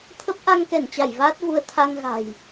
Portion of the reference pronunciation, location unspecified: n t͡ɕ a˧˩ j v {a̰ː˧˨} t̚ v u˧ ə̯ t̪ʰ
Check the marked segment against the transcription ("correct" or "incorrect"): incorrect